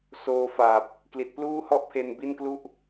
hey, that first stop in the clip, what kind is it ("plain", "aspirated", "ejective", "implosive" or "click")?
plain